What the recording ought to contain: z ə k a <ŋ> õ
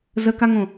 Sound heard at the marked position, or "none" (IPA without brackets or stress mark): ŋ